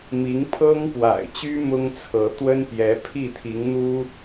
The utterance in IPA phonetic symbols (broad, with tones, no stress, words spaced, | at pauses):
mi˧˥ŋpʰɤ˥ŋpwa̰˨˩ɪ̯t͡ɕy˥ mʊ˥ŋt͡sʰɤ˧˥ t̪wə˥npjɛ˧˥ pʰi˥˩t̪ʰi˧˥ŋn̪u˥